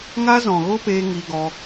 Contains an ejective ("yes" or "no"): no